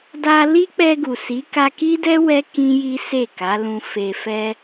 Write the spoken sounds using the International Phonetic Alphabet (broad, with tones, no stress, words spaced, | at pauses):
da˧li˦k͡pɛ˧ ɡu˨si˨˦ ka˧ki˦dɛ˦ wɛ˦ kĩ˦ji˦se˦˨ ka˨˦lũ˧fe˧fɛ˦